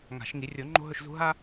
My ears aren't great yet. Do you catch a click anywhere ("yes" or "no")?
yes